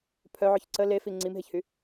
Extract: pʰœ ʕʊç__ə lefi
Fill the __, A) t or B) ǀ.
B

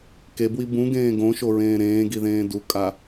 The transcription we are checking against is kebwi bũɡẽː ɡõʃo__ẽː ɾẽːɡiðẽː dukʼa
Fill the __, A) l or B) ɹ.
B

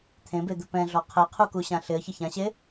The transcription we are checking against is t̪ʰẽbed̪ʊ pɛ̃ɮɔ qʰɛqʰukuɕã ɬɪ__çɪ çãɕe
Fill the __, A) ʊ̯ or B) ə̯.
B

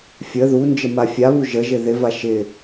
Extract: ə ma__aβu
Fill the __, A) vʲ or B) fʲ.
B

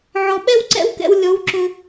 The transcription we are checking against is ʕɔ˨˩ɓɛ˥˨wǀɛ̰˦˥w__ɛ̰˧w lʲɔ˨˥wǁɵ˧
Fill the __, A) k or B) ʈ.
A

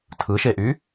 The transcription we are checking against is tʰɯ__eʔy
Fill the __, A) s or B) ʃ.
B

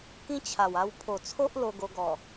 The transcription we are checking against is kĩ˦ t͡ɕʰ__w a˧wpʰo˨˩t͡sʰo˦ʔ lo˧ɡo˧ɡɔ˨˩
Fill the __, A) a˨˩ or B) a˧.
A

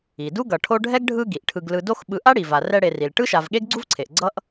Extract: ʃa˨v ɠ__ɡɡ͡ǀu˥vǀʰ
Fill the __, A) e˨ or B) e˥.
B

